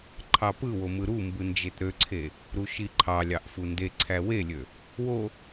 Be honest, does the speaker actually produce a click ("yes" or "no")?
yes